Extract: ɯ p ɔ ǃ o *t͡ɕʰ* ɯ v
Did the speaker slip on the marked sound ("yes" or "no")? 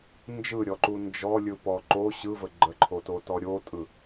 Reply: yes